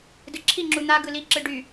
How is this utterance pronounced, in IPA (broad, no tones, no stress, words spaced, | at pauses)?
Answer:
dɯǁʰi ŋ͡ǁun̪a ɡɯli ǁɯɖy